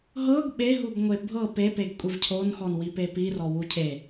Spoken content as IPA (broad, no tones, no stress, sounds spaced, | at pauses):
ɦ ɤ ɡ ɓ e ɦ u ɡ ŋʷ e bʱ ɤ p e p e ɡ kʷʼ i v cʰ o n x ɔ n w i p e p i r ɔ w u cʰ e